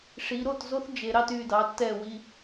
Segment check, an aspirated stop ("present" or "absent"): absent